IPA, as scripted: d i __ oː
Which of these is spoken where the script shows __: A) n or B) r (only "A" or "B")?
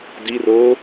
B